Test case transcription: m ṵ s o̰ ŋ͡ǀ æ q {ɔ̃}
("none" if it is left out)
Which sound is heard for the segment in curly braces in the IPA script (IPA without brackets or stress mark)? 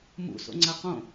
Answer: õ